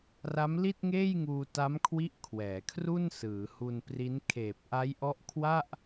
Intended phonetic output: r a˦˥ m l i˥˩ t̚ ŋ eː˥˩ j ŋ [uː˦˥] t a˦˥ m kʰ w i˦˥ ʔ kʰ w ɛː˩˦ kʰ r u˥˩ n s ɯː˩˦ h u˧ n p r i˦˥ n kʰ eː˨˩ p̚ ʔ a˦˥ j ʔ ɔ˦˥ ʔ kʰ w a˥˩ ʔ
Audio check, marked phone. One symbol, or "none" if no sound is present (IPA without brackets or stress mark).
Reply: uː˧